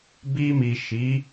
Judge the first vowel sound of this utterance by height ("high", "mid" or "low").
high